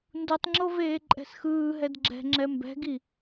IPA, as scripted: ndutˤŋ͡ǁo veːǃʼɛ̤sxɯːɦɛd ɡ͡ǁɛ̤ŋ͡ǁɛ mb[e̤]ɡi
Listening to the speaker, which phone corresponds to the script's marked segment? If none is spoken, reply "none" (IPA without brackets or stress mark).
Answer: ɛ̤